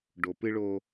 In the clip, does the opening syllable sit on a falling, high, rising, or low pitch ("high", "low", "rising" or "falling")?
low